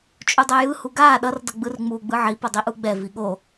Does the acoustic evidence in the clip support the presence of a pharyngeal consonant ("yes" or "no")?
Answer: yes